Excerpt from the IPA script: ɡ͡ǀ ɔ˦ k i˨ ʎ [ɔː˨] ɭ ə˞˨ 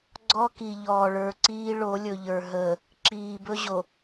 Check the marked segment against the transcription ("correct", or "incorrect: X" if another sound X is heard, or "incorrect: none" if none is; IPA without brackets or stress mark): correct